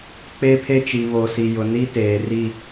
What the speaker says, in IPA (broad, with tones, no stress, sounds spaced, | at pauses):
k͡p e˦ pʰ e˦ t͡ʃ i˨ β oː˨ s i˨ j ʊ˨ n i˦ t eː˨ r i˦˨